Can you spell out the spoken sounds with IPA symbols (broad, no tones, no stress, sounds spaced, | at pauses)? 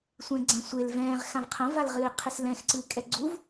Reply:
sʷ ɛ̃ ɡ͡ǀ ã sʷ e l v ɛ̃ː ʁ x ã v qʰ ɐ̃ v a l ʁ ɨː qʰ ɨ s l ɛ̃ x ǀ ɨː kʼ ɛ ɡ͡ǀ u v